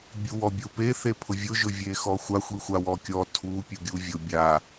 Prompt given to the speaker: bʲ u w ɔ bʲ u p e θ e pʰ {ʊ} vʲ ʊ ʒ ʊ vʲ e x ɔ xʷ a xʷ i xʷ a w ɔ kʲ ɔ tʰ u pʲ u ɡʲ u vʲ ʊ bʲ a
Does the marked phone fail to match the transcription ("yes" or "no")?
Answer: no